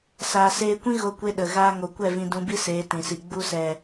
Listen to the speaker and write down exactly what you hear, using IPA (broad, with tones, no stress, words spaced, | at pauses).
saː˨seː˧kʷĩ˦ ɣo˧kʷe˧ ɗə˨ɣaː˦ŋo˧ kʷɛ˦˨vĩ˧dũ˧bi˦ seː˨˦tĩ˨si˨ ɡ͡bu˧sɛ˨